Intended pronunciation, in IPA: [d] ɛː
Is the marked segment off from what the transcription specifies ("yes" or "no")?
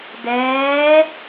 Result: no